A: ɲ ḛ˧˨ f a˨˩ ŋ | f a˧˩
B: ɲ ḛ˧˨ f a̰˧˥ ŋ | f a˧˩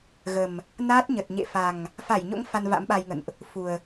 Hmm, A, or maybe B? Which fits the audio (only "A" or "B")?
A